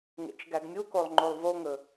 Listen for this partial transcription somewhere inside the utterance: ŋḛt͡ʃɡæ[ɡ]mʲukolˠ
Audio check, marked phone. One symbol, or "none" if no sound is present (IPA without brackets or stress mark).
ɡ